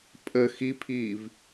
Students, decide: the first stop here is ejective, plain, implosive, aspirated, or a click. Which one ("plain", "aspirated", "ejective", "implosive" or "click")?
ejective